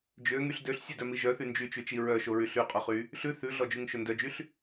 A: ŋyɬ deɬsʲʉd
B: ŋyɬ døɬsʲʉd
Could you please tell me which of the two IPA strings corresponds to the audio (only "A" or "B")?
B